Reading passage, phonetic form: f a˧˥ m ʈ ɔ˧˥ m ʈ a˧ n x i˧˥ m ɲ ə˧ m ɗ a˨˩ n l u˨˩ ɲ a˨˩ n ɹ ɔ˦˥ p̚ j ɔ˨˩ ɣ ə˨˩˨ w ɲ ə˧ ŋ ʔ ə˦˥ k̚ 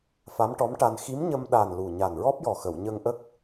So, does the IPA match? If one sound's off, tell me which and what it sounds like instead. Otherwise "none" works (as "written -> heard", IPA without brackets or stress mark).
ɣ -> x